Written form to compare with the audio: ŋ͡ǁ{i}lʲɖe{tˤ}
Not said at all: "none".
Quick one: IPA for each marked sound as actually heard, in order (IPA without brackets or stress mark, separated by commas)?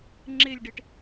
e, ʈ